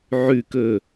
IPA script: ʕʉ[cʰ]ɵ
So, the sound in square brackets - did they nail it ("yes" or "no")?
no